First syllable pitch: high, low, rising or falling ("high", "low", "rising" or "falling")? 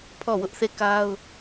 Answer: falling